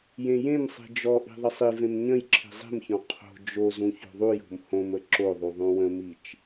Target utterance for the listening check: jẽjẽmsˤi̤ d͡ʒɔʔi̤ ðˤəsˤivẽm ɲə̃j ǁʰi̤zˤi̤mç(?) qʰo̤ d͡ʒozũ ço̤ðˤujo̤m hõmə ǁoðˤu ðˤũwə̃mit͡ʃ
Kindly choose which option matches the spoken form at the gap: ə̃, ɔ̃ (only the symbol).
ɔ̃